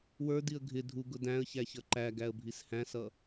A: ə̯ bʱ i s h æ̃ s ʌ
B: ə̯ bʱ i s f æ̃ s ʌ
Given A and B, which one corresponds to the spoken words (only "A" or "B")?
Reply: A